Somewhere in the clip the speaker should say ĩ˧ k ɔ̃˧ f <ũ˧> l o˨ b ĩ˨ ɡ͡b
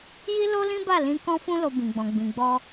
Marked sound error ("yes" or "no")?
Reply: no